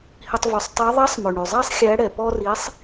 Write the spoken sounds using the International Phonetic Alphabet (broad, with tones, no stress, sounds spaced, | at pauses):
h i˧ tˤ v ʉ˩˧ sˤ tˤ e˧˥ ðˤ ɛ˧˥ sˤ m ɵ˩ ɳ y˩ zˤ æ˥ sˤ xʲ æ˧˥ ɽ ɛ˩ p ɔ˥ r i˧˥ sˤ